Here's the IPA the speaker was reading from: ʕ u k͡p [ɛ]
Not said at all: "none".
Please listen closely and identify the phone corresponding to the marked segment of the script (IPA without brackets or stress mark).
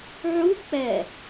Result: ɛ